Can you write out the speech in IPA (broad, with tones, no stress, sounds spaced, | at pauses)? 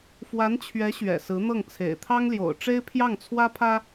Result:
f w a˧˥ n t͡ɕʰ ɥ ɛ˧˥ ɕ ɥ ɛ̰˨˩ s ɹ̩˧˥ n̪ ɤ˥˩ ŋ t͡sʰ ḛ˨˩ ɪ̯ t̪ʰ ɑ˥ ŋ l j o̰˨˩ ʊ̯ ʈ͡ʂ e˥ ɪ̯ pʰ j ɑ˥˩ ŋ t͡sʰ w ä˥ pʰ ä˥